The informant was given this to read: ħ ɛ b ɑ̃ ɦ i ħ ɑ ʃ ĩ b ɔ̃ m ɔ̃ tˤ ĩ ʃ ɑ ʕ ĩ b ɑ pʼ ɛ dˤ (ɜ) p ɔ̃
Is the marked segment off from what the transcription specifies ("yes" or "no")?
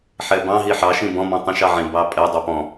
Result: no